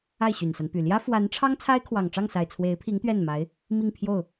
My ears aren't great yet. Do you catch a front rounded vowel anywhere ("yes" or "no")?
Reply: yes